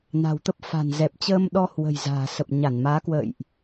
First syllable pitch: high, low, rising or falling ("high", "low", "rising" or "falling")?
low